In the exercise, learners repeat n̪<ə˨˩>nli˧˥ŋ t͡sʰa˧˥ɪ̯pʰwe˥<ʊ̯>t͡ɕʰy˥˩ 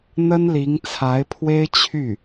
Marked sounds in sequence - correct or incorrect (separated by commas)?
incorrect, incorrect